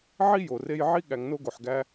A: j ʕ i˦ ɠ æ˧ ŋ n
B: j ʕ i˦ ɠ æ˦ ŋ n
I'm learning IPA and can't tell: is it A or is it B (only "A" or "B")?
A